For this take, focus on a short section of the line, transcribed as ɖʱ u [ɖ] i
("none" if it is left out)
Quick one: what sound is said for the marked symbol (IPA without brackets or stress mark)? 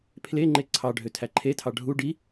ɖ